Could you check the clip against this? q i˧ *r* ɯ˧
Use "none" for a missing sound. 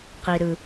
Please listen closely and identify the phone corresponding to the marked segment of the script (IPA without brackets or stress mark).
ɾ